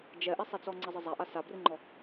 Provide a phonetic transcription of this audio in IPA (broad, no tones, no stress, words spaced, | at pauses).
d͡ʒɛʔɛsˤet͡sɔ ŋ͡ǀəzˤəzˤaʔa sabrɨŋ͡ǃɔ